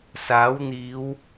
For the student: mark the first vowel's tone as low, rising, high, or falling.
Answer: rising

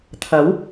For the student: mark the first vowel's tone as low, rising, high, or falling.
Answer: rising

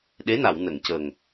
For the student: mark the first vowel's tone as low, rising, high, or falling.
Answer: rising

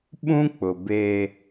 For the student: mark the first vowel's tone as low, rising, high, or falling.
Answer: high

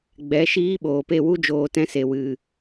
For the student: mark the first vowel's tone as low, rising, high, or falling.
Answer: rising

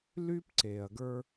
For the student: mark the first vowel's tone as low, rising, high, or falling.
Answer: high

